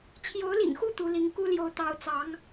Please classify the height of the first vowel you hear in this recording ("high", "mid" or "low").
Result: mid